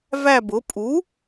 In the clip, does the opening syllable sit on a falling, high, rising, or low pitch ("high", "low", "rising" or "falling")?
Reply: falling